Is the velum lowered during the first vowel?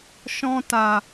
yes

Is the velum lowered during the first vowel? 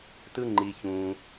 no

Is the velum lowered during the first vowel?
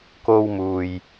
no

